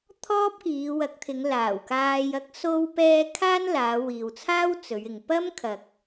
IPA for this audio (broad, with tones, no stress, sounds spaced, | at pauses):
t̪ʰ ɔː˥ p̚ k iː˨˧ w ɐ˨˥ k̚ t̪ʰ ɪ˨˧ ŋ l aː˨˩ w k aː˧ j ɐ˥ k̚ s o˥ w p ɛː˥ kʰ aː˥ n l aː˨˧ w iː˨ w t͡sʰ aː˥ w t͡s ɵ˨˧ ɥ ɪ˨ ŋ p ɐ˥ m kʰ ɐ˨ k̚